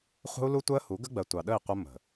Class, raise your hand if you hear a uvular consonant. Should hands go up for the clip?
yes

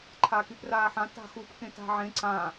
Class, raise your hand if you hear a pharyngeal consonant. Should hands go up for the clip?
yes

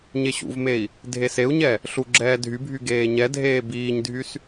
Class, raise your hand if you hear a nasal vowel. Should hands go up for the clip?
no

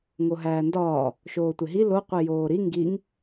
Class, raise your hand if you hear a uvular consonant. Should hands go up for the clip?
yes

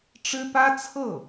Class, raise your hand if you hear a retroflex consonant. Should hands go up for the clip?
yes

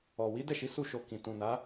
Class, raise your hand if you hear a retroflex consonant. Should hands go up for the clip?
no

